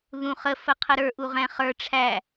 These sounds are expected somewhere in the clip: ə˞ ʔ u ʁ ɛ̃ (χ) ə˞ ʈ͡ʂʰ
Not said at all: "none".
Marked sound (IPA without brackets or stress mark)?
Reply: χ